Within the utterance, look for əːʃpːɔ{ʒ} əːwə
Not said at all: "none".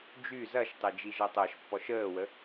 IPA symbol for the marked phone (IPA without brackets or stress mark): ʃ